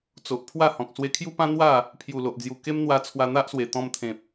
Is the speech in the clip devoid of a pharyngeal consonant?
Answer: yes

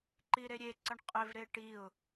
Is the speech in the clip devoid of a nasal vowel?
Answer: yes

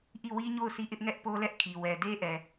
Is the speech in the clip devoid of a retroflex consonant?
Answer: yes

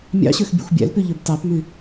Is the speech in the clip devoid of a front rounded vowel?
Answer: no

